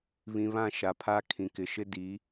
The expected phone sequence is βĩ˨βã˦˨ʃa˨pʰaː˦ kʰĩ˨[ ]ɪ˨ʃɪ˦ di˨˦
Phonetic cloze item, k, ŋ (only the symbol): k